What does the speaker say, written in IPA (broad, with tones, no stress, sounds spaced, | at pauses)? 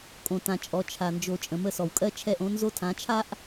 kʼ õ˨ t ã˨ t͡ʃʼ ɔ˨ t͡ʃʰ a˨ n d͡ʒ o˨ t͡ʃʼ ə̃˨ m ə˦˨ s ɔ˨ w kʼ ɜ˦ t͡ʃʰ ɛ˦˨ ʔ õ˦ n z o˦ tʰ ã˨˦ t͡ʃʰ a˦ ʔ